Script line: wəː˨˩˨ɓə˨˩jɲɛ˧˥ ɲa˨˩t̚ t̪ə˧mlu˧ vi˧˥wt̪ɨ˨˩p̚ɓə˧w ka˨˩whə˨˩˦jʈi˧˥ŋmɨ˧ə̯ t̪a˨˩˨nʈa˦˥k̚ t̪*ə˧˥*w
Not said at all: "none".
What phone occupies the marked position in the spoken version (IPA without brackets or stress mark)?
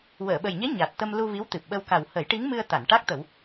ə˨˩˦